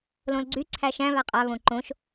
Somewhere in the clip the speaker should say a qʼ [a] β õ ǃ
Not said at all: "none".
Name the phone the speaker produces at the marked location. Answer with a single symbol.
a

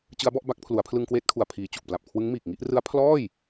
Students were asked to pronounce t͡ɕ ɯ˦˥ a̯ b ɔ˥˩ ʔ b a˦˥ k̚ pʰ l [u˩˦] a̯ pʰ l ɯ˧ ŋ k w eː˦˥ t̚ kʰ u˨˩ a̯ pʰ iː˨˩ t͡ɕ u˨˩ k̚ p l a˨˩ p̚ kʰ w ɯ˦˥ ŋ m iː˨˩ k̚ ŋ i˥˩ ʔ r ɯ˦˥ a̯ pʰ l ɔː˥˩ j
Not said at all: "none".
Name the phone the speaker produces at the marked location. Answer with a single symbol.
u˩˦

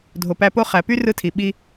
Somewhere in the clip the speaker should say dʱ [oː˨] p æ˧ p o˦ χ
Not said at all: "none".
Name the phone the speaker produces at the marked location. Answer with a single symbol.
o˨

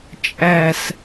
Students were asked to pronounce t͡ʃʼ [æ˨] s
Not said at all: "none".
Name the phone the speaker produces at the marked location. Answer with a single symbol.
æ˨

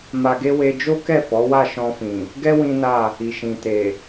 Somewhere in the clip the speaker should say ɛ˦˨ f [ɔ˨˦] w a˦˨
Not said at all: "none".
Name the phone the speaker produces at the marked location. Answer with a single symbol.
ɔ˨˦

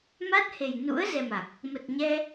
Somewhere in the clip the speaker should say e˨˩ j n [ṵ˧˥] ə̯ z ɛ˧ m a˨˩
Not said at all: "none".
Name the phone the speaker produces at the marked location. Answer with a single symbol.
ṵ˧˥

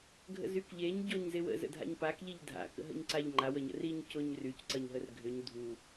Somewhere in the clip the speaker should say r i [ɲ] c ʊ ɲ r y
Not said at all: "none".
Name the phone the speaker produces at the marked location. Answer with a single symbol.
ɲ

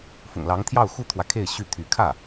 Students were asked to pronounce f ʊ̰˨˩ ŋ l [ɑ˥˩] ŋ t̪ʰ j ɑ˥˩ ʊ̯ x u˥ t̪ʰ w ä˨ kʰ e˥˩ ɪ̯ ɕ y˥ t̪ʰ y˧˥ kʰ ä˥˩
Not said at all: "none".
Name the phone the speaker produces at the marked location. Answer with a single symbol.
ɑ˧˥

